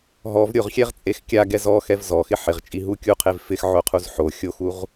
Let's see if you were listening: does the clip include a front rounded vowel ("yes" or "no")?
no